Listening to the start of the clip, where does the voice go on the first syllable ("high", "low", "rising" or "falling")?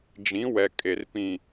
rising